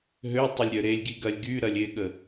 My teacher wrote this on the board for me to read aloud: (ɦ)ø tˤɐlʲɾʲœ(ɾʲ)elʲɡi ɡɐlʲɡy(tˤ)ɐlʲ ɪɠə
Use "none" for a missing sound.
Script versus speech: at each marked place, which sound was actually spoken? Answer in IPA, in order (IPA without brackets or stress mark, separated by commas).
ɦ, ɾ, ɾ